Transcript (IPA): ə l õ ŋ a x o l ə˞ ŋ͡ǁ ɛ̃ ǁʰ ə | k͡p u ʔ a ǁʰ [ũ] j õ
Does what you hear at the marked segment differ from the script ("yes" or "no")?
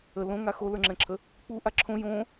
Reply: yes